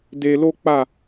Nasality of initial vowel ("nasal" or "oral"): oral